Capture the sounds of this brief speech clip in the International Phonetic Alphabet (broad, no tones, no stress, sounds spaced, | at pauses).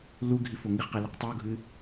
l u ɡʱ i f o ŋ i χ q i l i q tˤ i u̯ ɡʱ ɨ